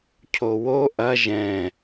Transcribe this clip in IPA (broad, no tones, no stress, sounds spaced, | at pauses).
cʰ o w o ʔ ɐ ʒ ɛ̃